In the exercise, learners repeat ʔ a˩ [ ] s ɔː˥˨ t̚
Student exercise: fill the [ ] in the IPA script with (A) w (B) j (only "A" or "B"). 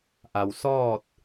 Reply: A